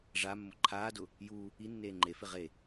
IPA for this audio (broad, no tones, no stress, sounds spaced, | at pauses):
ʐ a mː ʊ ǃʰ aː d ʊ | j u | i nː eː ŋ͡ǃ e f ɪ ʁ e